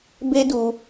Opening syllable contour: high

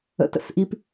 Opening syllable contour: rising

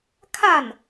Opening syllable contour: falling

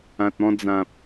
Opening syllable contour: low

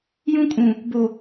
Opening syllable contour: high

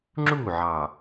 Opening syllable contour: falling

